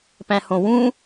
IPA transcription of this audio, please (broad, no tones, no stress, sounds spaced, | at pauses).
p æ̃ h õ w ũ